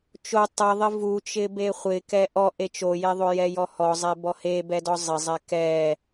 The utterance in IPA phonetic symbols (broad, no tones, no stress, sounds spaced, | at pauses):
t͡ʃ o tˤ ɛ ðˤ ɪ v u t͡ʃ ɪ b e χʷ ɪ k ɛ ʔ ɔ ʔ e t͡ʃ o j e ðˤ o j ɛ j ɔ h ɔ zˤ e b ɔ h e b ɛ d ɔ zˤ ɪ zˤ ɛ k ɛ